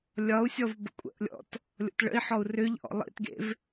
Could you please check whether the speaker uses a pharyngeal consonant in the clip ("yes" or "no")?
yes